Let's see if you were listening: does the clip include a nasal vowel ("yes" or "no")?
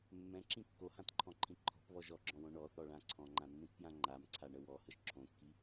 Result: yes